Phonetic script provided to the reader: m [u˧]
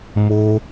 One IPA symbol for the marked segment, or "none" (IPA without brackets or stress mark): o˧